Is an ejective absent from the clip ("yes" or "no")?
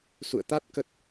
yes